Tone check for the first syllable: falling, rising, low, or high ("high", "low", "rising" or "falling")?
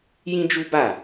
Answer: high